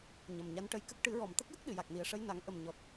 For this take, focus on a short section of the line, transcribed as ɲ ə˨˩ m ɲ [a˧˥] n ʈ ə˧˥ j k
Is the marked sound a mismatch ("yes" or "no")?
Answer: no